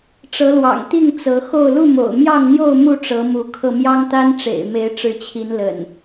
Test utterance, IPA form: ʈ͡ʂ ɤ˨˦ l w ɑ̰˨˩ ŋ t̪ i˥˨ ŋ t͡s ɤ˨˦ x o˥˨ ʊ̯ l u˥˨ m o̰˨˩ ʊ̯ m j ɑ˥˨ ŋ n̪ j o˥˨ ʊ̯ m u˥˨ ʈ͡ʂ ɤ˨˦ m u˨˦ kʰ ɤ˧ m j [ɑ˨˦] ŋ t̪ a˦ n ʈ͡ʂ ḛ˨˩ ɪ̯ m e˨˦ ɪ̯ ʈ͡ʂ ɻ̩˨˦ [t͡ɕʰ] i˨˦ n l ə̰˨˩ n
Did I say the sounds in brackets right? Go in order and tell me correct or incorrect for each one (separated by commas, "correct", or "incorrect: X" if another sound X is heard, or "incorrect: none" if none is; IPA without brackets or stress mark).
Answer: incorrect: ɑ˦, correct